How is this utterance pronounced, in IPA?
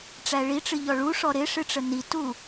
ʈ͡ʂ æ ɭ i ʈ͡ʂ ɨ ʎ ɔ ɭ u ʂ ɔ ɾ ɪ ʂ ɨ ʈ͡ʂ ə n i t u

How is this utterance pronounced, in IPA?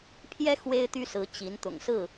pʰ j ɛ˦ x w e˦ ɪ̯ t̪ y˦ s ɹ̩˨˦ t͡ɕ i˨˦ n t̪ ʊ̰˨˩ ŋ s ɹ̩˥˨

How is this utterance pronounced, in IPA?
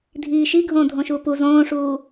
dʱ iː ʃ i ɡʱ õː dʱ õ ʃ uː p u z õː ʂ uː

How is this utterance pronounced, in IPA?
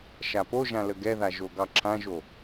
ʃ a p o ʒ ã l ə ɡ ɛ ð a ʒ o ɡ ɑ ǁʰ ã ʒ o

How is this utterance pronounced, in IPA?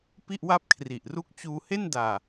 p i˥˩ ʔ w a˥˩ p̚ kʰ r i˨˩ ʔ r u˦˥ k̚ t͡ɕ uː˧ h e˥˩ n d aː˨˩

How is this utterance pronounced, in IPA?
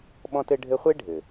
ɓ ɔ̃˥ t ɘ˥ ɖʱ ɘ˥ χʷ e˥ ɖʱ ɘ˩

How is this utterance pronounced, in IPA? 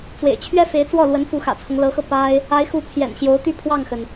t͡s w ḛ˨˩ ɪ̯ t͡ɕʰ ɥ ɛ˥ f e˧˥ ɪ̯ t͡s w ɔ˥˩ l w ə˧˥ n f u˧˥ x ä̰˨˩ t͡sʰ ɤ˦ ŋ l ɤ˧˥ x ɤ˧ p a˥ ɪ̯ | a˧˥ ɪ̯ x u˧˥ pʰ j ɛ̰˨˩ n ɕ j o˧˥ ʊ̯ t̪ y˥˧ pʰ w ɑ˥˩ ŋ x ə˩ n

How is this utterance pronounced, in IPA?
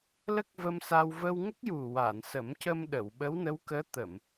l ə˦˥ k̚ v ə˧ m s a˧ w v ə˧ w ŋ ə˦˥ k̚ j u˨˩ w a˨˩˨ n s ə˨˩˦ m c ə˧ m ɗ ə˨˩˨ w ɓ ə˧˥ w n ə˧˥ w k əː˧˥ t̪ ə˨˩˨ m

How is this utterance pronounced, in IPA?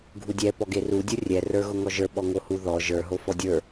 ɡʱ u dʲ ɛ p ɔ ɡ e r u dʲ u rʲ ɛ r ə˞ ɣ ʊ ŋ ɔ ʒ ə˞ ɓ ɔ ŋ o h u ð ɔ ʒ ə˞ ɦ o f ɔ dʲ ə˞

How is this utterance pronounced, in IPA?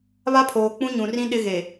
β a˦ pʰ oː˨ k͡p ũ˦ ɲ ũ˨ r ĩ˦ ɗ ɪ˦ ɣ e˨

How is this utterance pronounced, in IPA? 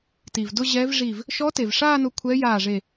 t i˩ v d ʊ˥˧ ʑ ɛː˧˥ v ʐ i˧˩ v | ʃ ɔ˧˥ t e˩ v ʂ aː˥˧ n ʊ˧˩ kʷʰ ɛ˧˥ j aː˧˩ ʐ e˧˩

